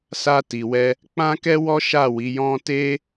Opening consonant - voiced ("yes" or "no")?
no